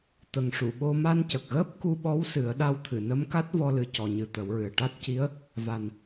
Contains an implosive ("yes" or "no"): yes